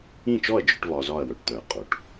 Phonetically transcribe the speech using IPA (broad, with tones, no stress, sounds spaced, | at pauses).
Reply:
ĩ˥˩ t͡ʃ ɔ˥˩ ɐ̯ d͡ʒ œ˥ ʈ β ɒ˧ z ɒ˥˩ ɐ̯ w œ˩ ʈ t̪ œ˩ ɐ̯ qʼ o˩ ʈ